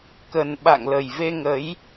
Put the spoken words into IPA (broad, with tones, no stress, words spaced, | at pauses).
kə˨˩nɓa̰˧˨ŋlə˨˩j ve˧ŋə˨˦j